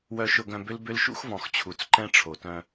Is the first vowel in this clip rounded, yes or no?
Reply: yes